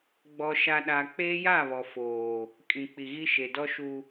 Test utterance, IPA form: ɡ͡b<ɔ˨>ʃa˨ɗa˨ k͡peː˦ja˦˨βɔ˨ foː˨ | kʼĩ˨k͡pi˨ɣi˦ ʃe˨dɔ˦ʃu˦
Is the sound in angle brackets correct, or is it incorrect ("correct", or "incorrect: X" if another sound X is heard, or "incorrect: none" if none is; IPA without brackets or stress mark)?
correct